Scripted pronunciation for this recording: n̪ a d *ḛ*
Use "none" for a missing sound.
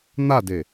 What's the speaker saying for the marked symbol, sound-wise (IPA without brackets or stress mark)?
e